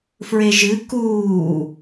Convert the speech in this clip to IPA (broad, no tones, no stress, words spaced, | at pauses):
fɹeʒɨ kuː